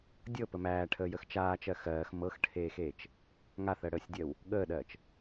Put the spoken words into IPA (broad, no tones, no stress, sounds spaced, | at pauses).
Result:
dʲ ɤ p ə m æː ʈʰ əː j ə x t͡ʃ aː t͡ʃ ɜ x ɜː x m ɤ x ʈʰ eː x eː t͡ʃ | ŋ a θ ɜ ɽ əː sʲ dʲ ɜ w | ɠ əː ɗ ɜː t͡ʃ